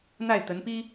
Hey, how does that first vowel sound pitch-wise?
falling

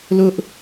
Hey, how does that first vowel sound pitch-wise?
high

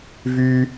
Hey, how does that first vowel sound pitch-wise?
low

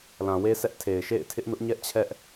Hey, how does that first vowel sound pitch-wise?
low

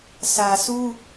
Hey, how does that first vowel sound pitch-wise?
low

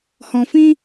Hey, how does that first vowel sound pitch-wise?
low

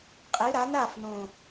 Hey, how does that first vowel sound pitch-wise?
rising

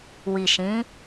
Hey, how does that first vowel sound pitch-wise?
low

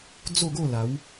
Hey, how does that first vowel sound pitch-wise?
falling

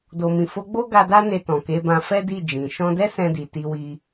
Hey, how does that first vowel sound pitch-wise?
low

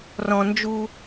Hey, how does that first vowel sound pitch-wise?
high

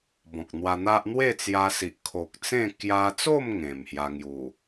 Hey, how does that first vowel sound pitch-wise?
low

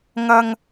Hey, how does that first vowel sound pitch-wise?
low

